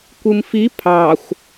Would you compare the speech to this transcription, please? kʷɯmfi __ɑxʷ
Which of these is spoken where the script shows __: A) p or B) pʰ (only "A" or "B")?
B